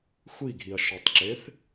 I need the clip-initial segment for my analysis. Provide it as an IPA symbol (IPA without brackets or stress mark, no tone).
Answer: xʷ